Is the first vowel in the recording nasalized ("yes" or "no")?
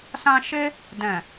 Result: yes